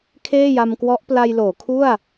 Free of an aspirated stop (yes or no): no